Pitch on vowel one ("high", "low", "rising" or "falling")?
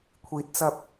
low